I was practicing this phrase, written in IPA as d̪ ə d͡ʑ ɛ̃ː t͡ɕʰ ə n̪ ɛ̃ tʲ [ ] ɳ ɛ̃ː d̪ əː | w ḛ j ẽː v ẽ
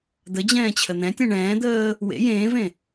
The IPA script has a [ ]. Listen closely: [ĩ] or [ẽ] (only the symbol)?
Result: ẽ